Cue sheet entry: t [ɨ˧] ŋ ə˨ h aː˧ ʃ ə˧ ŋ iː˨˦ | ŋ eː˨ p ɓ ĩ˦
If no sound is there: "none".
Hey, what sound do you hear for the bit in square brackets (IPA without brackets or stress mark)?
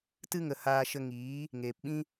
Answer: ɨ˧